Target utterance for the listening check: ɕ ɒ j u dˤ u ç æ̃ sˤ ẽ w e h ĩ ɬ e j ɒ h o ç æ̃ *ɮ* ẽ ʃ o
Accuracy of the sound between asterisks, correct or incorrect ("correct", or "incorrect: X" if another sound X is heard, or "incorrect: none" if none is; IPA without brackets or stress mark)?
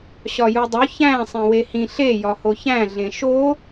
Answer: correct